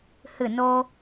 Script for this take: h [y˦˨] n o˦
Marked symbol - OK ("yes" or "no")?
no